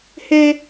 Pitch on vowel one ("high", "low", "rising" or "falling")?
high